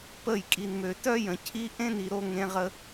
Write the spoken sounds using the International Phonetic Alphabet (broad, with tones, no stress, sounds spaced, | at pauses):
p ə˦˨ j kʼ i˨ n m ø˨ t œ˦ j ə̃˨ cʰ i˦ ʔ ẽ˦ n i˨ ɾ o˧ ŋ ẽ˧ ʁ ə˧